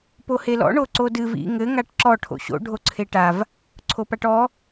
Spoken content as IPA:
pohelɔ̰ ɳoǀodɨv ḭ ŋɘ ŋaʈǁɔ ʈʰo̰ɕo̰ ɖʱoǀʰeʈav | ǀʰopaʈɔ

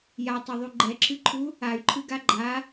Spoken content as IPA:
jatˤoðˤu ɡ͡ǃɛǁɨǃʰu | ay̯ǃʰɨɡa ɡ͡ǃa

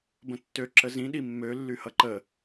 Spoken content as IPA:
bə̃tːø ǁəzĩ ɗimːø lːyhʌǃə

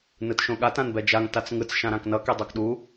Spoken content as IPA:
nɯtʃõɠat ãnbɛd͡ʒaŋ tat͡sŋɯt͡s ʃãɾãknʌ kedˤokɗu

